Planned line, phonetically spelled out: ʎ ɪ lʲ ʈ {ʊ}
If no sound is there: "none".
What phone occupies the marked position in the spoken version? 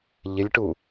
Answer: u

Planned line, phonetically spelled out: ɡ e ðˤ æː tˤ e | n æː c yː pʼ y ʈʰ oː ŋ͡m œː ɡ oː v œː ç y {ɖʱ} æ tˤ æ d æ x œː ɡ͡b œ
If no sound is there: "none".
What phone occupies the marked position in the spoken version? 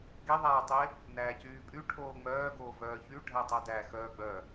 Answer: ɖʱ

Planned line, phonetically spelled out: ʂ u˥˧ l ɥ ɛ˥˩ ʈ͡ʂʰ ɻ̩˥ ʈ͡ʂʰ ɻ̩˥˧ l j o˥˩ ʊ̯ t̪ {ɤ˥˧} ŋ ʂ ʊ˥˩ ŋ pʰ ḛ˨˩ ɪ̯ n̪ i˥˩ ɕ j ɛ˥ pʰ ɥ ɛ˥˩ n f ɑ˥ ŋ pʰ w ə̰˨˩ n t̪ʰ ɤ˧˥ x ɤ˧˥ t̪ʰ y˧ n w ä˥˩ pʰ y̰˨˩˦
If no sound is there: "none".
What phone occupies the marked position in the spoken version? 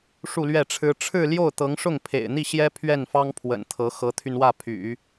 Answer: ɤ˧˥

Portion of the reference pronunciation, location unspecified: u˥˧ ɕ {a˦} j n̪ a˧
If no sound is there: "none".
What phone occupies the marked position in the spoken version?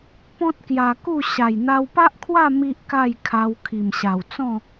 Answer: a˨˩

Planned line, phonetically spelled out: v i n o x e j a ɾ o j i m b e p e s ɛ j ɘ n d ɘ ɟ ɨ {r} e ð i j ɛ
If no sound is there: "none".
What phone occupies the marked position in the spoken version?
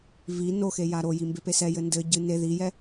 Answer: n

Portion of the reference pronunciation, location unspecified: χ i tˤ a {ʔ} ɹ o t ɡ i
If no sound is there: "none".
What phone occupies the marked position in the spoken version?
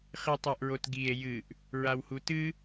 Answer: ʔ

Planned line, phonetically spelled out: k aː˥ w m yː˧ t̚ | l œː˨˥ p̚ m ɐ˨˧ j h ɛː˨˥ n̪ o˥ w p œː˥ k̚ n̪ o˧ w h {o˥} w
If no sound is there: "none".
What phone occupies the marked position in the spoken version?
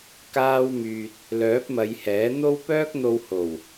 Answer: o˨˩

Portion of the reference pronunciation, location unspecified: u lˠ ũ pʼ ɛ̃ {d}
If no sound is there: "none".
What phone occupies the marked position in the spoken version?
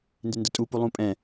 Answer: none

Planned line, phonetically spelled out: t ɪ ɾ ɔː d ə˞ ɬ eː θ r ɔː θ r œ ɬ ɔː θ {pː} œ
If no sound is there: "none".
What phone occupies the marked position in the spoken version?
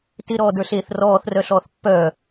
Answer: pː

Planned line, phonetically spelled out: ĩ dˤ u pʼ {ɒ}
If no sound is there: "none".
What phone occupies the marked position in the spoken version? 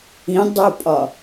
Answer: ɒ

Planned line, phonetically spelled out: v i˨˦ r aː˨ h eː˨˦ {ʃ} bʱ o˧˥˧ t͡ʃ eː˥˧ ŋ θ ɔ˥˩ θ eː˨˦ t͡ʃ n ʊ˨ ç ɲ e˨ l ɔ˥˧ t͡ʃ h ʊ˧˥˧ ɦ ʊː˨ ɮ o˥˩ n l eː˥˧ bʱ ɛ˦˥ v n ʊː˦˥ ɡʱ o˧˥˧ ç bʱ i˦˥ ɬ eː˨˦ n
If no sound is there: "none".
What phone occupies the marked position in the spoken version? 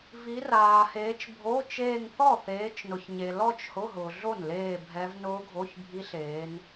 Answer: t͡ʃ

